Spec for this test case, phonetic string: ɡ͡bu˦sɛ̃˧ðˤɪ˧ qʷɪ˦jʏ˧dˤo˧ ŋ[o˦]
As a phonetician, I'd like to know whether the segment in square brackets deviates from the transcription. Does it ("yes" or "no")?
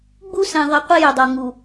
yes